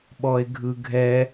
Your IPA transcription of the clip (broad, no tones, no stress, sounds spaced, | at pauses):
ɓ ɔ e̯ ɡʱ ɯ ɡʱ ɛ